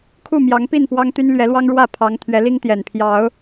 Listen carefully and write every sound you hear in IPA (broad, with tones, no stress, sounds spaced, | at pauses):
kʰ u˥˨ m j ɑ˨˦ ŋ p i˥˨ n p w ɑ˦ ŋ t̪ y˦ n l ɥ ɛ˨˦ l w ɑ˦ ŋ ɻ w ä˥˨ pʰ ɑ˨˦ ŋ t̪ʰ ɥ ɛ˨˦ l i˦ ŋ t̪ j ɛ˨˩ n pʰ j ɑ˨˦ ʊ̯